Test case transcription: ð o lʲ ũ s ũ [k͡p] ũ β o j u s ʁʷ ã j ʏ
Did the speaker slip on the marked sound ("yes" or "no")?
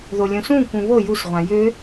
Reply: yes